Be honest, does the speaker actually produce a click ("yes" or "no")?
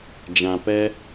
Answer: no